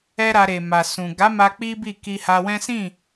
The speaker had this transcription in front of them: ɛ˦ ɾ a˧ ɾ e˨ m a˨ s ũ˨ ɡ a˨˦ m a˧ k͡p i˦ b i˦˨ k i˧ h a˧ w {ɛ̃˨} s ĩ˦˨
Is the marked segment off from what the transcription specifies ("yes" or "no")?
yes